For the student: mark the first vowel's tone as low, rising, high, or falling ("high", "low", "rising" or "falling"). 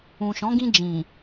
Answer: low